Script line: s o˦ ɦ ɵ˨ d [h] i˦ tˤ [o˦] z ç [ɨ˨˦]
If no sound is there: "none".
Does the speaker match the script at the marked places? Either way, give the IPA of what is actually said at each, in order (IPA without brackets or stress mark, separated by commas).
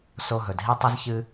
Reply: ɦ, ɵ˦, ɨ˦